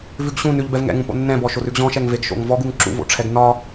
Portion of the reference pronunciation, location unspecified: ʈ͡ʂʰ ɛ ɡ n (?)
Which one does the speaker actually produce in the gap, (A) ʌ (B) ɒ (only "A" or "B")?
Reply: B